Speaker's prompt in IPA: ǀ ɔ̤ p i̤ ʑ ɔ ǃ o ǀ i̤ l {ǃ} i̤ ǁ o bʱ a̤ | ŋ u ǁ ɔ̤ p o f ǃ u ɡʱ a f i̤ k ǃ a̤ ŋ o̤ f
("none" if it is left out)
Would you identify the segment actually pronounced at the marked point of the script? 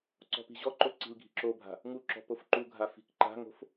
ɡʱ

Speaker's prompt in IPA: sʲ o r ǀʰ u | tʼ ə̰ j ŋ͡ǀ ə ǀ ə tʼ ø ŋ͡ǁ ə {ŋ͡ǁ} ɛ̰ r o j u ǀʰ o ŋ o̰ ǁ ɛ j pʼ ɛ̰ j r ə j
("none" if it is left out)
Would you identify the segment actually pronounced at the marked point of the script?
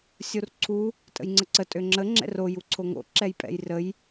ŋ͡ǁ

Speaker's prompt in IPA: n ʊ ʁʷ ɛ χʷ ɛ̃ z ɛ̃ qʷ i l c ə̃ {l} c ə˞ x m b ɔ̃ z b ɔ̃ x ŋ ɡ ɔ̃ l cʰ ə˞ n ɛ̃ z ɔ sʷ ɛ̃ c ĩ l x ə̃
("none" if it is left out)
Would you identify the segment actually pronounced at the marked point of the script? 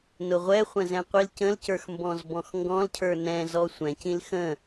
l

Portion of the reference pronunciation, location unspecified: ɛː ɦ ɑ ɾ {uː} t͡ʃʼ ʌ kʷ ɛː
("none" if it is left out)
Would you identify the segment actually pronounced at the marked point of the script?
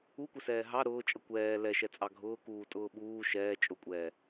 ʊː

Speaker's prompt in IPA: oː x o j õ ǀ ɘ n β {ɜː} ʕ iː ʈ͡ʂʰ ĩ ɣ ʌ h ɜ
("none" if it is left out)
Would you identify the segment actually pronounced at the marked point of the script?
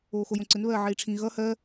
ɜː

